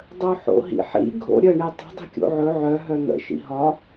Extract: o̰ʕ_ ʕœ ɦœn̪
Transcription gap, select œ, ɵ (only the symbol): ɵ